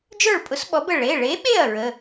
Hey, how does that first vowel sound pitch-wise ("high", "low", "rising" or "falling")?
falling